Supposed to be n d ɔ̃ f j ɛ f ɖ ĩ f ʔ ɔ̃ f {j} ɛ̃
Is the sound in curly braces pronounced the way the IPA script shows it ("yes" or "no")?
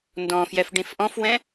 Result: no